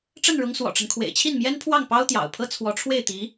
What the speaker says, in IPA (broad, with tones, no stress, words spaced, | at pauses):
ʈ͡ʂə˥˩nɻʊ˧˥ŋ swɔ̰˨˩ʈ͡ʂə˦n kʰwḛ˨˩ɪ̯t͡ɕʰi˥˩nmjɛ˥npʰwɑ˥˩ŋ pɑ˥ʊ̯t̪jɑ̰˨˩ʊ̯pʰɤ˥ t͡sʰwɔ˧˥ʈ͡ʂʰwe˥˩ɪ̯t̪i˧˥